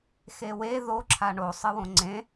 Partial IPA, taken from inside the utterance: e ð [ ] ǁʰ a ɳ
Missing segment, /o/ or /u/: o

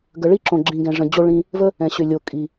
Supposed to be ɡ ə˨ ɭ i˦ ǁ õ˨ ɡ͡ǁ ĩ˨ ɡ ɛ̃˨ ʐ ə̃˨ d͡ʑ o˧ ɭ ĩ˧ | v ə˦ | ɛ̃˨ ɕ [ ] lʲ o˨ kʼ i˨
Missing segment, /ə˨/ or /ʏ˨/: ʏ˨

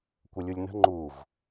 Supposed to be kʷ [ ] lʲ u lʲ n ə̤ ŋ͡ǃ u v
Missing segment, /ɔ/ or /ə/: ə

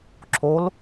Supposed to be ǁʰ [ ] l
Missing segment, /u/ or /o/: o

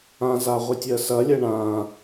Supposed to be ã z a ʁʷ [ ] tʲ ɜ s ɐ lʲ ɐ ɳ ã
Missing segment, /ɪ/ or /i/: ɪ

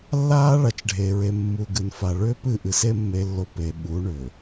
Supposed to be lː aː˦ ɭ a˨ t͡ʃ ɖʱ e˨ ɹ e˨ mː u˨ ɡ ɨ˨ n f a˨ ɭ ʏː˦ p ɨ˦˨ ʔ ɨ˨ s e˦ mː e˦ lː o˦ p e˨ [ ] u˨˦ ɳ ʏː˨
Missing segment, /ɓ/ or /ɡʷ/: ɓ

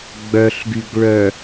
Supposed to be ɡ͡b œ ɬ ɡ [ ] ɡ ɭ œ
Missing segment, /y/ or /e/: y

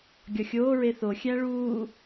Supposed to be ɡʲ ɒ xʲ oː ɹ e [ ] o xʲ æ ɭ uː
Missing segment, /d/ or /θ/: θ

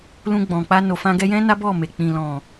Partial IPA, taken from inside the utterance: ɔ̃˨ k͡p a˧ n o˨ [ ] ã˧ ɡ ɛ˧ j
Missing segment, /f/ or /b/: f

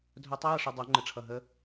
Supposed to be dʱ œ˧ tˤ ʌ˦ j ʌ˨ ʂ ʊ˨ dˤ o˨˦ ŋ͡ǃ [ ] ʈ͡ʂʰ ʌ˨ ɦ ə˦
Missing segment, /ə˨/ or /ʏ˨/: ə˨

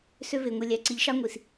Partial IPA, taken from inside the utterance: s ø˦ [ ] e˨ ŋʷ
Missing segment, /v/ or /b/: v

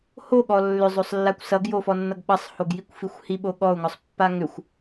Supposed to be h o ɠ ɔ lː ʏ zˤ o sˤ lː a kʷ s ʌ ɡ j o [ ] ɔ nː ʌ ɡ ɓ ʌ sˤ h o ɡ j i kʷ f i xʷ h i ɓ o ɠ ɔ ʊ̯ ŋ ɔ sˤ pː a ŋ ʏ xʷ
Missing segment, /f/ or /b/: f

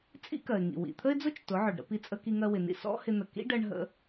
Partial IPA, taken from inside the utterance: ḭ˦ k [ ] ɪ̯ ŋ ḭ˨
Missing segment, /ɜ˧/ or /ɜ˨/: ɜ˨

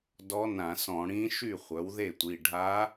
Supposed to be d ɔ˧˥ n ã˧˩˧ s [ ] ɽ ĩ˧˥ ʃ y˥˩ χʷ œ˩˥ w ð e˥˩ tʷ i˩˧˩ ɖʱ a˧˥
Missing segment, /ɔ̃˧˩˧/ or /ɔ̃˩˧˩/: ɔ̃˧˩˧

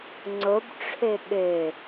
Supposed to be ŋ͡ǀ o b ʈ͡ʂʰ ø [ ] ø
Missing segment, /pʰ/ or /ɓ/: ɓ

